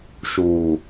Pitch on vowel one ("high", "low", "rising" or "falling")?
low